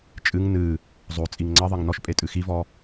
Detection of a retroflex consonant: absent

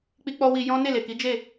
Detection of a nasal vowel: present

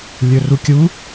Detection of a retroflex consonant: absent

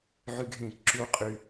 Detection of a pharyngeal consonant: present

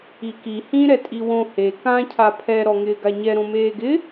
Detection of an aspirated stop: present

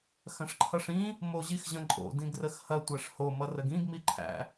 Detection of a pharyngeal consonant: absent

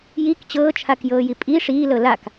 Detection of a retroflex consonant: present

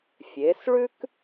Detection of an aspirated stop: absent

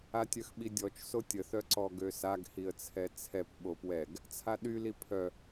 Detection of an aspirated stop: present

